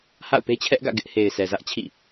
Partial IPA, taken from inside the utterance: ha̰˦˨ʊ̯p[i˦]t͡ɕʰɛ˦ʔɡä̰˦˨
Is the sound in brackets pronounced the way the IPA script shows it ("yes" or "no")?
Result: no